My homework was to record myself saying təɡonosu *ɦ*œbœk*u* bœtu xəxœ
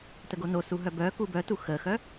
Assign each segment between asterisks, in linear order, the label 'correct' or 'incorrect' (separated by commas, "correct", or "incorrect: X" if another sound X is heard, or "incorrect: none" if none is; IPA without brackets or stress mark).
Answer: correct, correct